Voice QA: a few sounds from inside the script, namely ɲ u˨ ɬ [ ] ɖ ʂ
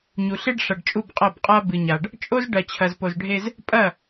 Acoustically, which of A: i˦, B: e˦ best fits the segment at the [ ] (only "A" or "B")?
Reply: B